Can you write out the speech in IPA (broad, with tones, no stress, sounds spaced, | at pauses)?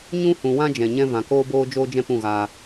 ɲ ũ˦ h ũ˨ w ã˦ d͡ʒ ɛ̃˨ ɲ ɛ̃˦ v ã˨ k oː˦ b oː˦ d͡ʒ oː˦ d͡ʒ ɛ̃˦ p ũ˦˨ ɣ aː˧